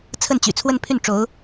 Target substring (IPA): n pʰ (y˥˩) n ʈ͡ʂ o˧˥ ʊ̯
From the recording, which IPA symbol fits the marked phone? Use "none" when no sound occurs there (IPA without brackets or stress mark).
y˥˩